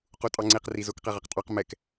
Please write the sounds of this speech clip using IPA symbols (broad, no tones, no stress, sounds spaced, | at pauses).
q u tʼ ɑ ŋ͡ǀ i q r i z ʊ k q ɛ ʁ a q tʼ ɑ q m ɛ k